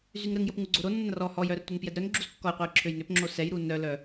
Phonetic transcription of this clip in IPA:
z y ŋ ɾ ə ŋ j ə p ŋ u ɡ͡ǀ o ɾ o nː ɐ n r ɔ h ɔ j œ r tʷ a n p j ɛ d ɾ œ n ɡ͡ǁ u z kː ɔ j qʷ ɛ j ǁʰ ø j n ʏ p ŋ͡ǁ o s ɛ j ɾ u n œ l œ

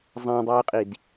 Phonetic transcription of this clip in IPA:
zˤ ã dˤ ɨː qʼ i d

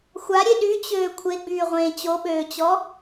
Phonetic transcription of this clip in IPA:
xʷ a ɾʲ e ɗ y t͡ɕ øː kʷʰ e ɡ͡b yː ʁʷ ẽː t͡ɕ o ɓ øː t͡ɕ ɔ

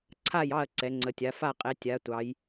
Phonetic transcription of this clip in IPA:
ǀʰ a˥˨ j ɑ˥˨ ɐ̯ ǀ ɛ˩˧ ŋ͡ǀ ə˩˧ tʲ a˩˧ f a˥˨ qʼ ɛ˩˧ tʲ a˩˧ tʷ ɑ˩˧ j

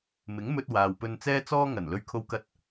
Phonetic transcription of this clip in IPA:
m ɪ˨˥ ŋ m ɵ˧ t̚ w aː˨ w p ɵ˧ n t͡s ɛː˥ t͡s ɔː˥ ŋ ɐ˨˩ n l ɵ˧ ɥ kʰ o˧ w k ɐ˧ t̚

